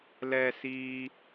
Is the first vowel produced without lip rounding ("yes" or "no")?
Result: yes